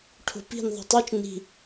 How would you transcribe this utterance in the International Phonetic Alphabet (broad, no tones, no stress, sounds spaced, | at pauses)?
ʈʰ o̤ p i̤ n ðˤ i̤ tˤ o t͡ʃ n i̤